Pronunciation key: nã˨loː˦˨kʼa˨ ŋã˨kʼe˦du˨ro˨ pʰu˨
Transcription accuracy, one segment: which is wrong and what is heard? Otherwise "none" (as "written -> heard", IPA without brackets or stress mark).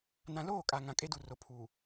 none